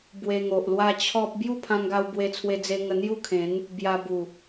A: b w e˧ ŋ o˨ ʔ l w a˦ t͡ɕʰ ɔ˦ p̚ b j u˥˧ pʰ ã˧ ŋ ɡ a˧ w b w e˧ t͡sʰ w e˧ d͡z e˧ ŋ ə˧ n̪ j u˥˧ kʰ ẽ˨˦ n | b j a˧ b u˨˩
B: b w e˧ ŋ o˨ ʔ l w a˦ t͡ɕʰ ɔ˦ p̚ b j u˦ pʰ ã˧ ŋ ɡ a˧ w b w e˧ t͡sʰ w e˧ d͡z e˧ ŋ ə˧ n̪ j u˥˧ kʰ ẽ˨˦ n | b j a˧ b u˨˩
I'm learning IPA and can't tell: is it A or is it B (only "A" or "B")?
A